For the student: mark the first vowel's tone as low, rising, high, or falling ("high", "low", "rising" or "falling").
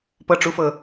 falling